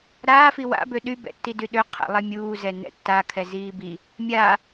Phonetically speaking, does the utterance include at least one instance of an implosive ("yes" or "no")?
yes